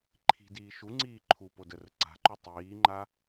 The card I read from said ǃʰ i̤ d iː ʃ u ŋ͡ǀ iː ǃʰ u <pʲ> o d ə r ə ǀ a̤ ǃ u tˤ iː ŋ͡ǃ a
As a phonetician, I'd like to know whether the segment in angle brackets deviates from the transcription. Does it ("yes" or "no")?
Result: yes